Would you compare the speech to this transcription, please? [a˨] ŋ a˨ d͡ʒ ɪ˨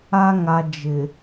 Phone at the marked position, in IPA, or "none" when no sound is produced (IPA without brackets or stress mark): a˨